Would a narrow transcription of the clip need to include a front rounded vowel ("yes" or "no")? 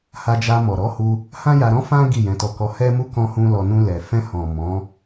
no